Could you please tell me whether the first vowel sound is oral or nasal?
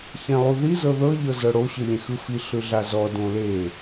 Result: nasal